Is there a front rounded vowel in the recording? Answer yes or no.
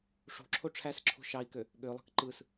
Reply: yes